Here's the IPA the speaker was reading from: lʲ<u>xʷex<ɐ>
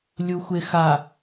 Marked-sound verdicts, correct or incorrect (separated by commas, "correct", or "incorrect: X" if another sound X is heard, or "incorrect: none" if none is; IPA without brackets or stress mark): correct, incorrect: a